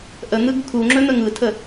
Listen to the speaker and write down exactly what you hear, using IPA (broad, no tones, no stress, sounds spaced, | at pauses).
ʔ ə n̪ ɯ ɡ kʰ u ŋ͡ǁ ɵ n̪ ə ŋ ɯ tʰ ə